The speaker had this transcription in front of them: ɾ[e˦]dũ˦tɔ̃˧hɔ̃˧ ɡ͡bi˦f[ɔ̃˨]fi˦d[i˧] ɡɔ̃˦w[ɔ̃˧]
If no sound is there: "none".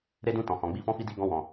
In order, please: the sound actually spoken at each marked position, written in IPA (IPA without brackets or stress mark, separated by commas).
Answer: e˦, ɔ̃˦, i˦, ɔ̃˧